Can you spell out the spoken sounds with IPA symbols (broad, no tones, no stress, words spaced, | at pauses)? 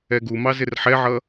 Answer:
ɛɡumɑ zɪrħɛʕʌ